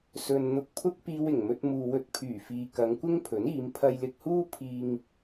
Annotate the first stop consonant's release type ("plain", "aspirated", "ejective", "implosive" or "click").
plain